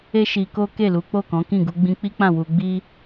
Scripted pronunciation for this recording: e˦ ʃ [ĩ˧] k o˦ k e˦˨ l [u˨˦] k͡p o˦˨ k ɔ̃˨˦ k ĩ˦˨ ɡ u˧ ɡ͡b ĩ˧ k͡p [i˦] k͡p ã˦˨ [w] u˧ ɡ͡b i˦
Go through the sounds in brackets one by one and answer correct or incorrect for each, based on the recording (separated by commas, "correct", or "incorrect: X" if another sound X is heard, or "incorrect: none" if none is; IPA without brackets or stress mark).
incorrect: i˧, correct, correct, correct